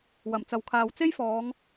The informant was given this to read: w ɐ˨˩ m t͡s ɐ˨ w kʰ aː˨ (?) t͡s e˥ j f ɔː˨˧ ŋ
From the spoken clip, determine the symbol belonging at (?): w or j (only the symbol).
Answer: w